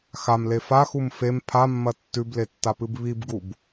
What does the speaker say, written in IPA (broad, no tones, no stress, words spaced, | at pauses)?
xamle faxum fem pʰamːɐ tːʉbletːapɨb βibɡub